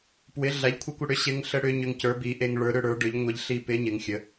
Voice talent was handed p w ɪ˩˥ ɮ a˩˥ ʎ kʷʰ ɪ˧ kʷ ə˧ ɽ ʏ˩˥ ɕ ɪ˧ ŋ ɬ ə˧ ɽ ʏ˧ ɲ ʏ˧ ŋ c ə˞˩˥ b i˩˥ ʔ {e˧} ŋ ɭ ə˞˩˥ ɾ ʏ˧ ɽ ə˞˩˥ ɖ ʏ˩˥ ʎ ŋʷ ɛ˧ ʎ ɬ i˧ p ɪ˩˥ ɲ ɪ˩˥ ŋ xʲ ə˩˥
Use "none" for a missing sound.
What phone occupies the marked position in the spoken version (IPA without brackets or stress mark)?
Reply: e˧